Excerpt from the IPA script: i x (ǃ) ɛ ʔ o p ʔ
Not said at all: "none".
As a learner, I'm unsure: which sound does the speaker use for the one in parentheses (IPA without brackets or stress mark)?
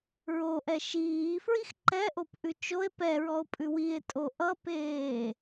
ǃ